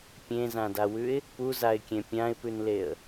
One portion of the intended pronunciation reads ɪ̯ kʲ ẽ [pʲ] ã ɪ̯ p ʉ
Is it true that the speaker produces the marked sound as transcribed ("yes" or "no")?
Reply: yes